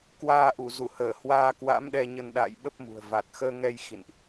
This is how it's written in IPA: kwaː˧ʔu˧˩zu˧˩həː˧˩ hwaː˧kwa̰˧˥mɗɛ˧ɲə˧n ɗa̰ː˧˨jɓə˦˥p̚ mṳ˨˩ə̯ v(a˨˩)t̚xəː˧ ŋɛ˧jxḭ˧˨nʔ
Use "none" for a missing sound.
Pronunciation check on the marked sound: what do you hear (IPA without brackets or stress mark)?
a˨˩